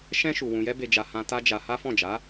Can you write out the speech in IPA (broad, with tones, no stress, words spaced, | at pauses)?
ʃɛ̃˦ ʃu˧ wũ˧jɛ˦be˧d͡ʒa˧ hã˧ ta˦d͡ʒa˧ ha˦fɔ̃˦˨d͡ʒa˨˦